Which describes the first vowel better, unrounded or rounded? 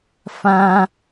unrounded